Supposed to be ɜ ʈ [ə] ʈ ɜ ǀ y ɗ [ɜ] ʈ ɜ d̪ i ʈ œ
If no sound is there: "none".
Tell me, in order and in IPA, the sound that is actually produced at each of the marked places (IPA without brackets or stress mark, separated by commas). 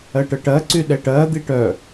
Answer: ə, ɛ